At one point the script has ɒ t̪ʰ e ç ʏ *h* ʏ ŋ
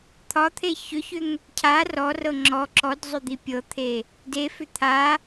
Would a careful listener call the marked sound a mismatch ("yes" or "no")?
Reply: yes